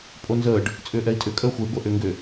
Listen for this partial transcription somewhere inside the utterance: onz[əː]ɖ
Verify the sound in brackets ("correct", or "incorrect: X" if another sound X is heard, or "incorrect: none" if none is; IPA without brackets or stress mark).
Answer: correct